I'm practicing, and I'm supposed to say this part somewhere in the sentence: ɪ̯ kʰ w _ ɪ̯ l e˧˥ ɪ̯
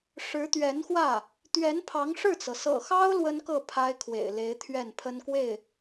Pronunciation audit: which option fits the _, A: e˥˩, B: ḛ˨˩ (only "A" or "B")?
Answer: B